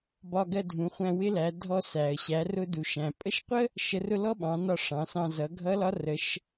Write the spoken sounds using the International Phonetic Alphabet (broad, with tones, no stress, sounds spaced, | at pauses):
b ɒ˧ ɡ ɜ˧ dʱ ũ˩˧ χʷ æ̃˧ w ɪ˧˥ l æ˩˧ dʱ ɔ˧ s æ˩ ə̯ ɕ æ˩˧ r ʊ˧ d u˩ ʃ æ̃˩ pʼ ə˧˥ ʃ qʷ ə˥ | ʃ ə˧˥ r ʊ˥ l ɔ˥ ɓ ɑ̃˩˧ n ɒ˧ ʂ ɑ̃˩˧ s ɑ̃˧ z ʌ˩˧ ɡʱ ʌ˧˥ l ɒ˧˥ r ə˩˧ ʃ